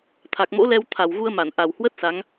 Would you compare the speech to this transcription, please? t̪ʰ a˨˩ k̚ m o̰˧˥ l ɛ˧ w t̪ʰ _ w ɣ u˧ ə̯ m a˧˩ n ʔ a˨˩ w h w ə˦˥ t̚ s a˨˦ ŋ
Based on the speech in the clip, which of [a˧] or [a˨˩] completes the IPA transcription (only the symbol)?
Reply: a˨˩